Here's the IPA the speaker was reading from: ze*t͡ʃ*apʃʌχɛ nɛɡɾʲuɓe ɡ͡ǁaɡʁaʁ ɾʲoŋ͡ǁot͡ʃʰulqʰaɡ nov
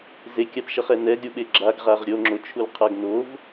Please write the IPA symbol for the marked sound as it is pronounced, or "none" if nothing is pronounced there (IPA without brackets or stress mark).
kʲ